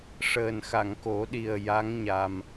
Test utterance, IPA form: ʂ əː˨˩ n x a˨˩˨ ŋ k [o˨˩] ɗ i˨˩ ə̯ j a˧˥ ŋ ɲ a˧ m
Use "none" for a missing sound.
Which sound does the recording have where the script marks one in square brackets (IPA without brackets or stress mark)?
o˨˩˦